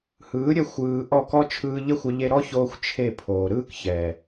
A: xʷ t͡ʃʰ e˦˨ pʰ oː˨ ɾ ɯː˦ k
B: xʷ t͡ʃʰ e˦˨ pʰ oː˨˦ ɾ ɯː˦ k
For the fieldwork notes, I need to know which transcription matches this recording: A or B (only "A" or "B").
A